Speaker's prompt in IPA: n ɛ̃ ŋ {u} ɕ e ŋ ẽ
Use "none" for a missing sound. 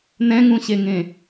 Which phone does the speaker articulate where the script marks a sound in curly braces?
ũ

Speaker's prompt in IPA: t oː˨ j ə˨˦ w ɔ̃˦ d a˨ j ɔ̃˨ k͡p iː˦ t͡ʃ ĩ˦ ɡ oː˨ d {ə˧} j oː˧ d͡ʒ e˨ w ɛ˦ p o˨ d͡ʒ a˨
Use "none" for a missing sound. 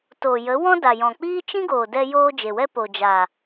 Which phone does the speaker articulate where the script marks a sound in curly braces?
ɛ˧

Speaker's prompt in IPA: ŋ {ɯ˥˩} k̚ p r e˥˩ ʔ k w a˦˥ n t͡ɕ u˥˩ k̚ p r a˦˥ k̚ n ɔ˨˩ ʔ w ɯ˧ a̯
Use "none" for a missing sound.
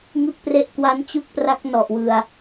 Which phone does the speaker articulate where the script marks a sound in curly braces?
ɯ˥˩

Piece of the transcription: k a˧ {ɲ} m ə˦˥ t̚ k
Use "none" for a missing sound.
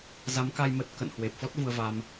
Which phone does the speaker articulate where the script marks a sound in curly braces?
j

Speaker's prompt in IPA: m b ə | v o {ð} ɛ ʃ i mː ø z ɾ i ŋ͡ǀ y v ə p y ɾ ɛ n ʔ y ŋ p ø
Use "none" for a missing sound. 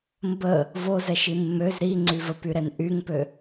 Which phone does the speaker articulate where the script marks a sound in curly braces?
z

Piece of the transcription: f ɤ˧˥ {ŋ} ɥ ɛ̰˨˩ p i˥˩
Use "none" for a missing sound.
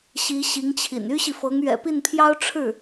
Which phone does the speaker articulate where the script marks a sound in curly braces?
ŋ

